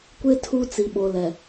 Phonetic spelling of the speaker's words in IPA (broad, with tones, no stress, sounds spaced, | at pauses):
kʷ ɪ˦ tʰ u˦ t͡s i˨ ɓ o˨ l ɛ˨